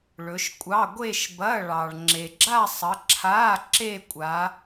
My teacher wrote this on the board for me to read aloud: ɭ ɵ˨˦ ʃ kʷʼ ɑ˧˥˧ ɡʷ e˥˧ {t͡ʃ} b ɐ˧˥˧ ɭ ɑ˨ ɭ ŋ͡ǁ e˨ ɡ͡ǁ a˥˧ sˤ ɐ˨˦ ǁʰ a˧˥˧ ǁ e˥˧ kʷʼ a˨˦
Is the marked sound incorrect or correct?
incorrect